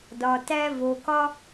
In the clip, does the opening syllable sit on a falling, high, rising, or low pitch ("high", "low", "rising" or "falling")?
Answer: low